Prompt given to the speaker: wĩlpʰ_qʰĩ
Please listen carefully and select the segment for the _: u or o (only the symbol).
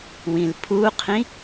u